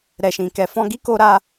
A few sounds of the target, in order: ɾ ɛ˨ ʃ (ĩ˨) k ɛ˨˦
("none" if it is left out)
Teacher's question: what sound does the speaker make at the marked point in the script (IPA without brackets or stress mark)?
ĩ˨